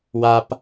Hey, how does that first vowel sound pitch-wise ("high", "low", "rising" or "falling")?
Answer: high